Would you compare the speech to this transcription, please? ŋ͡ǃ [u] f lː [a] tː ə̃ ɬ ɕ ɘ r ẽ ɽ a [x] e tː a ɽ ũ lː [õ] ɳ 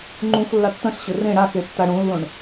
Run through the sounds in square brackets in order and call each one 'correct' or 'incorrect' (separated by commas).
incorrect, correct, correct, correct